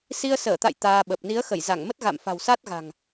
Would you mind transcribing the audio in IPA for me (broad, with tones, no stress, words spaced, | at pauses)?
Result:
si˧ə̯səː˧˩t̪a̰˧˨j t̪aː˧ɓə˨˩p̚ ni˨˦ə̯xə˧˩jza˧˩ŋmə˦˥t̚ ɣa̰˧˨mfa̤˨˩wsa˦˥t̚ɣa̤˨˩ŋ